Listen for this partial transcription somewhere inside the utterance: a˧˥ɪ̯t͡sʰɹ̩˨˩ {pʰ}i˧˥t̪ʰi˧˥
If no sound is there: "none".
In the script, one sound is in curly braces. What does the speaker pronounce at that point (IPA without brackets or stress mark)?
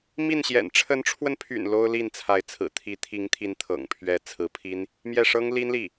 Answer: t̪ʰ